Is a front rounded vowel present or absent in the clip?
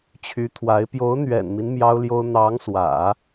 present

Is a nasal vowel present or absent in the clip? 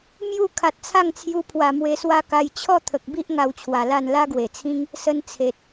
present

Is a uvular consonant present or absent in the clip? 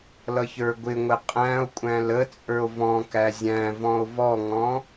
present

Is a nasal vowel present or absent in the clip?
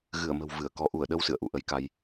absent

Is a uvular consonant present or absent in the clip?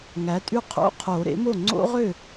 present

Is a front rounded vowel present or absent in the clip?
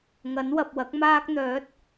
present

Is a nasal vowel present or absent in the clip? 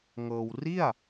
absent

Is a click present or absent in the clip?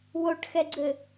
present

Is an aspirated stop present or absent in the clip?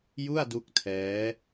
present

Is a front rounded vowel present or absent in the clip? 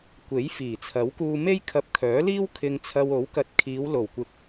present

